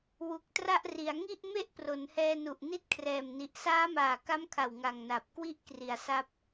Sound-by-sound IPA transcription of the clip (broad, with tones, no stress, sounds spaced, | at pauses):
w u˨˩ k̚ t r a˥˩ ʔ r i˩˦ a̯ ŋ i˥˩ ʔ m e˥˩ ʔ p r o˩˦ n h ɛː˧ n u˨˩ ʔ n i˥˩ t̚ kʰ r ɛː˨˩ m n i˨˩ ʔ s aː˦˥ m aː˨˩ k a˦˥ m kʰ a˨˩ w ŋ a˨˩ ŋ n a˨˩ p̚ k w i˥˩ ʔ k r i˨˩ a̯ s a˦˥ p̚